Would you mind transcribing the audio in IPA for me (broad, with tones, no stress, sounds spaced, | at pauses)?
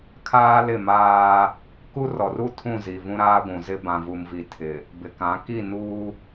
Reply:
kʰ aː˦ l ɪ˦˨ m aː˦ | k u˦ r ɔ˨ r u˦ tʰ ũ˦˨ z i˨ v ũ˦ ɾ aː˦ ɡʷ ũ˨ z ɪ˦ b ã˨ v u˨ m v i˨ tʰ ɪ˨ | b ɪ˨ k ã˨˦ k i˦˨ n uː˦